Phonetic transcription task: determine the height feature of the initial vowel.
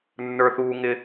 mid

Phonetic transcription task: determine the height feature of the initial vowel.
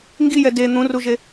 high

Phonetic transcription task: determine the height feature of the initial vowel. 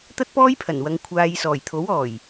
low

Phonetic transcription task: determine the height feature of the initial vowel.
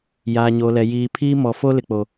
low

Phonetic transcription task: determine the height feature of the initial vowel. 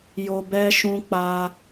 mid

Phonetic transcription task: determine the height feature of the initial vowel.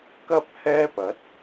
low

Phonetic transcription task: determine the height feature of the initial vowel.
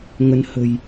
mid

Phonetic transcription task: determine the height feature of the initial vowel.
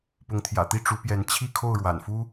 high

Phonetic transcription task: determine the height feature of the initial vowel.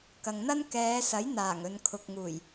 low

